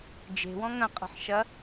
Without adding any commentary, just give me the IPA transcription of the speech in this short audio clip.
d͡ʒ e̤ w ɔ̃ ŋ ɐ̃ qʼ ə̤ ħ ʃ ɐ

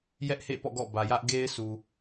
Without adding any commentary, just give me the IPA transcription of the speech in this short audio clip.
j ɛ˦ ʔ h ḛ˦˨ p ɔ̰˦˨ ɡ ɔ̰˦˨ b ä˨ j ä˦ ʔ ɡ e˦ ɪ̯ s u˨

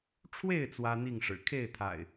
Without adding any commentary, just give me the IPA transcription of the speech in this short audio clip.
ʈ͡ʂʰ w e˥˨ ɪ̯ t͡s w ä˦ n̪ i˥˨ ŋ ʂ ɻ̩˨˩ kʰ e˥˨ ɪ̯ t̪ʰ a̰˨˩ ɪ̯

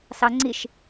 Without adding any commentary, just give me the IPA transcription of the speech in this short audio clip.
s ɑ ŋ͡ǀ i ʃ

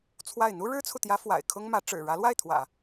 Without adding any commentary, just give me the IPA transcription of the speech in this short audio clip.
t͡sʰ w a˥˩ ɪ̯ n̪ u˥ ɻ ɻ̩˥ t͡sʰ u˨ t̪ j ä˧˥ f w a̰˨˩ ɪ̯ kʰ ʊ˥ ŋ m ä˧˥ ʈ͡ʂ ɻ̩˨˩ ɻ ä˧˥ l w a˥˩ ɪ̯ t̪ʰ w ä̰˨˩˦

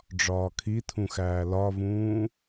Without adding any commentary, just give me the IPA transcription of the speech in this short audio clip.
ɖ͡ʐ ɒː kʰ i tʰ ũ x æː l ɒ v ũː

